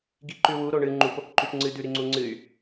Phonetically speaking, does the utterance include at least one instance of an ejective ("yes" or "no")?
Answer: no